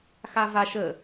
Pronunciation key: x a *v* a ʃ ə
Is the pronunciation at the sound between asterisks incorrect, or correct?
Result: correct